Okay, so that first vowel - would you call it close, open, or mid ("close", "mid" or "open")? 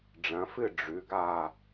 open